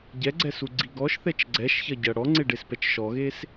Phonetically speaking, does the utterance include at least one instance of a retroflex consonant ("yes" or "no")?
yes